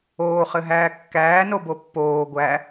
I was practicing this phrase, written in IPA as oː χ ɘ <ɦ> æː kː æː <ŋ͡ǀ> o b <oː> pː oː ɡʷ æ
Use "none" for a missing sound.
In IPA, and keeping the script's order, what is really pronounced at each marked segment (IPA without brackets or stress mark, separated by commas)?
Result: ɦ, n, o